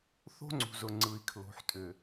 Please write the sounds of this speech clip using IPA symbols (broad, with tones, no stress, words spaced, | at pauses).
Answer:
θo̤˦ŋ͡ǀṳ˨zʊ˨ ŋ͡ǀɯ˨i̯kʰlo̤˨ħtʼʏ˨